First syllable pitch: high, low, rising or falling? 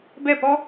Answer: falling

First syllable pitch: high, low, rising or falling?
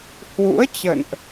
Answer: rising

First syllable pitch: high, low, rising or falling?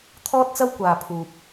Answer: high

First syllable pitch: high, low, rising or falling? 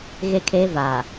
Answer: high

